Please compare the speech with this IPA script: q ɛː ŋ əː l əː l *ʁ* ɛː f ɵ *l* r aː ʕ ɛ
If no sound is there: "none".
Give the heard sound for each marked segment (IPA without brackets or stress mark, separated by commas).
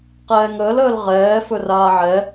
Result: ʁ, none